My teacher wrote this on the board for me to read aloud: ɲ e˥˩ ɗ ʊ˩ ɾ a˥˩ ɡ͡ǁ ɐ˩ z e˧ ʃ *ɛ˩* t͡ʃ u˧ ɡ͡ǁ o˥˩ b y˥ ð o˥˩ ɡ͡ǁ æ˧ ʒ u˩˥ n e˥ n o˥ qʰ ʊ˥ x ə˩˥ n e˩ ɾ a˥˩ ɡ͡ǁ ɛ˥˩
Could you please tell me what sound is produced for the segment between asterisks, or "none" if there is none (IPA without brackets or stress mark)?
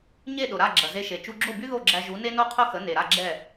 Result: e˩